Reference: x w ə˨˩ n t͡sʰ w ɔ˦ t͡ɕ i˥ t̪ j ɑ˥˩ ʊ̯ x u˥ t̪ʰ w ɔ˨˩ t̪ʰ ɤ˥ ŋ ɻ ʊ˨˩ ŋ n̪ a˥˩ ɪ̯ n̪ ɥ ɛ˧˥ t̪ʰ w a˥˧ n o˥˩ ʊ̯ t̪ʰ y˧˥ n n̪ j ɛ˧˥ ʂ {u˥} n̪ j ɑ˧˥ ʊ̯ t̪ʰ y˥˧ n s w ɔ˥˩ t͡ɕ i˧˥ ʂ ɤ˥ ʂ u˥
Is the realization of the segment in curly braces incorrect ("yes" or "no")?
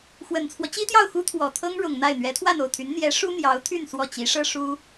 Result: no